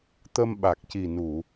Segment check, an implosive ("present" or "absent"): present